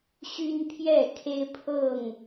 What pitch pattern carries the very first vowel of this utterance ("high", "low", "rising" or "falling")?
high